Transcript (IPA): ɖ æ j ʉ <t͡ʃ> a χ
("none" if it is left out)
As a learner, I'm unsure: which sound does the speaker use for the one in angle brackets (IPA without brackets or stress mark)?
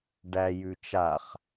t͡ʃ